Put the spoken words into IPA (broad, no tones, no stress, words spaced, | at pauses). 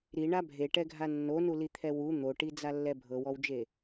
ɾiɳa bʱeʈɛɡʱa nːonulit̪ʰɛ wu n̪oʈid͡zalːɛ bʱɤwɔwd͡ʒe